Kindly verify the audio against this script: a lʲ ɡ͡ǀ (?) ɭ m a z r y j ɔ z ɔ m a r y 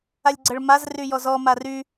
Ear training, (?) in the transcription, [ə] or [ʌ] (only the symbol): ə